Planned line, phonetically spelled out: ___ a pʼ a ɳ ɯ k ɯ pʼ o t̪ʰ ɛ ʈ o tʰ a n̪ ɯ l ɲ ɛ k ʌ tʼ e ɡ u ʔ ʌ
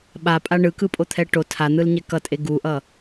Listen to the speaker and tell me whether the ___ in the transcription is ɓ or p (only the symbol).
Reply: ɓ